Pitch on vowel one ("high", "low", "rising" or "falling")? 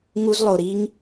high